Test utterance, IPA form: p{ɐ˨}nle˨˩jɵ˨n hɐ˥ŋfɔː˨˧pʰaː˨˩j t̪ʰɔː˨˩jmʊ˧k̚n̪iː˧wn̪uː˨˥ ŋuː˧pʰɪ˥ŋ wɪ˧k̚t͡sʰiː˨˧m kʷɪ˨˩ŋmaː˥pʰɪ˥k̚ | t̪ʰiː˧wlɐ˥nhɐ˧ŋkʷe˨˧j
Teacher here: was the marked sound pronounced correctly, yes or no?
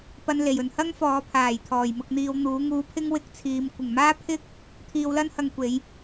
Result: no